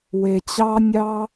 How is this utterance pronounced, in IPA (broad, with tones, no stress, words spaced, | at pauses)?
we˨t͡ɕɑ˧ nʲɑ˦